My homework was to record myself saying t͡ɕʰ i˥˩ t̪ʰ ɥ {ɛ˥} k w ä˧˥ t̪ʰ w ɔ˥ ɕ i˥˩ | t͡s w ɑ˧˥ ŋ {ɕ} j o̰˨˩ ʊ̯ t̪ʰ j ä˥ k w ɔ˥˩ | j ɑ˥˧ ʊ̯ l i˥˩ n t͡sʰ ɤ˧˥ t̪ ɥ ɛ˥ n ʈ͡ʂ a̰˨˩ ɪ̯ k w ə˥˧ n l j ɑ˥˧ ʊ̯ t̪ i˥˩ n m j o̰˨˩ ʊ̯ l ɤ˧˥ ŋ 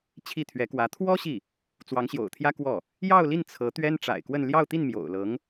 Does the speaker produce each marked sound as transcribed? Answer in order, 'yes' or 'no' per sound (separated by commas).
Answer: no, yes